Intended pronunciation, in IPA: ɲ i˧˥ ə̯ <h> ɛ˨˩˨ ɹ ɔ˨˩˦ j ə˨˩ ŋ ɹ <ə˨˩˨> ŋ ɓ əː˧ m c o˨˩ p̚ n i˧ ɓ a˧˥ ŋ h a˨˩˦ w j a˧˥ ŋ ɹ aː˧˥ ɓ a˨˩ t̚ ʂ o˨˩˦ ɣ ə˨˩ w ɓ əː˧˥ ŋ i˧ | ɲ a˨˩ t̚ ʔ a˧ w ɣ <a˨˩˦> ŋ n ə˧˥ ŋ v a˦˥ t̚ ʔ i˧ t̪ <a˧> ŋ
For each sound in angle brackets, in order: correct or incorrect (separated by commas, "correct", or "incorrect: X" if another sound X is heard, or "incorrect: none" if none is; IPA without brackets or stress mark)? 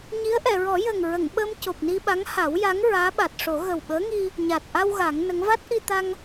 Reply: incorrect: ʔ, correct, correct, correct